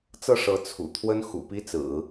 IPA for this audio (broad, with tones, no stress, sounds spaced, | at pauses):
t͡s ɤ˥˩ ʂ ɤ˧˥ t͡sʰ ṵ˨˩ t̪ʰ w ə˥ n x ṵ˨˩ p i˥ t͡s ɹ̩˨˩˦